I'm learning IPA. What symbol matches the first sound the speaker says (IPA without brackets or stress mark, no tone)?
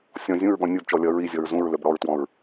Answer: sʲ